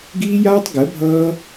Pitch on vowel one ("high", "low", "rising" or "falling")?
high